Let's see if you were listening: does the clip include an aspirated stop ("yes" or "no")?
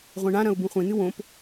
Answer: no